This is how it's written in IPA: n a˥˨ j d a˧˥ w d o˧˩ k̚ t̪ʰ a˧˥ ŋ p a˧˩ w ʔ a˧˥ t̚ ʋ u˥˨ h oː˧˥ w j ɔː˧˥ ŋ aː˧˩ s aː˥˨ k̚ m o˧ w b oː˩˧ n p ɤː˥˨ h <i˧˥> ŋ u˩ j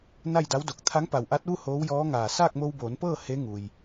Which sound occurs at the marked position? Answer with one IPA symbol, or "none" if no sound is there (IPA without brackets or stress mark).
e˧˥